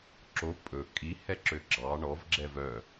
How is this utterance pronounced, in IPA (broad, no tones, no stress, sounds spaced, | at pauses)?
ǁ o pʼ ɵ kʼ i h ɛ ǁ ø ɡ͡ǁ ɑ ɳ ɔ v ɡ͡ǁ ɛ v œ